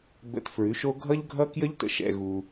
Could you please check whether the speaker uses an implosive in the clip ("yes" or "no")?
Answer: no